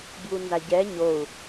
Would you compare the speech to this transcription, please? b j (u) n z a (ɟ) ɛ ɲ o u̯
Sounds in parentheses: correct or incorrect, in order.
correct, correct

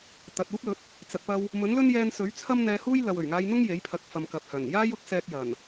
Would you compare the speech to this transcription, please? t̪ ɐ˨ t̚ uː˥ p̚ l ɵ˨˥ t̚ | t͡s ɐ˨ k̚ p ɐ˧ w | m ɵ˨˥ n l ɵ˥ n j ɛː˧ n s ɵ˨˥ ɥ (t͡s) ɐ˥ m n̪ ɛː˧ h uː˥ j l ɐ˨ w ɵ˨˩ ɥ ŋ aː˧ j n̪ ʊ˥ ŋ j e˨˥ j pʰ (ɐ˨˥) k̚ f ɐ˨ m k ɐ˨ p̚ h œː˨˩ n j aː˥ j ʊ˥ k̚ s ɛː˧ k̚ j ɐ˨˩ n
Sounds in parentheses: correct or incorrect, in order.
incorrect: t͡sʰ, correct

